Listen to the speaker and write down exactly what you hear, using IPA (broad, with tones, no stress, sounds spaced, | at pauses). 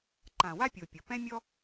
ǃ ã˨ w a˦ pʲ o˨ pʲ ɤ˨ p ɛ̃˦ mʲ ɔ˦